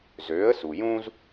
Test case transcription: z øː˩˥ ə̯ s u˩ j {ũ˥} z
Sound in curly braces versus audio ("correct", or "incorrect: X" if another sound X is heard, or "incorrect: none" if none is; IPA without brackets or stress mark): correct